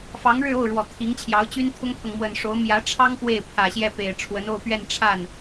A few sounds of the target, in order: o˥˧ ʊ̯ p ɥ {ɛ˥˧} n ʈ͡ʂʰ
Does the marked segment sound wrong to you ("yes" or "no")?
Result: no